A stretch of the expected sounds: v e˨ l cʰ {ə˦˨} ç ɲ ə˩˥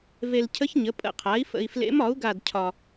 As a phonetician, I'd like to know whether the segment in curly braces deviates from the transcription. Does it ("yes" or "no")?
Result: yes